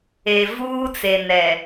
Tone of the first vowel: low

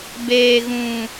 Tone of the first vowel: low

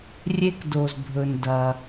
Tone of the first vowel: high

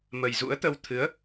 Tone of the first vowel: low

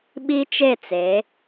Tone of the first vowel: high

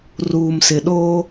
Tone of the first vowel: low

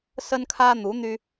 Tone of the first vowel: high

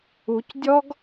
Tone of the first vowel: rising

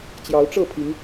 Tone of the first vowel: rising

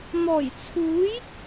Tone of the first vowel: low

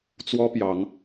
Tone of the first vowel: high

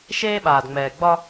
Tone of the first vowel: high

